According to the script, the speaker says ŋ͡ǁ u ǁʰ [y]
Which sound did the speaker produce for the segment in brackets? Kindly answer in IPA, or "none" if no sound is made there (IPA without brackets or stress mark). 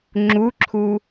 u